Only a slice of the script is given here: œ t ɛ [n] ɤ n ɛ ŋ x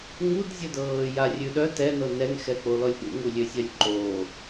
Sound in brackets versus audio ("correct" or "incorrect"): correct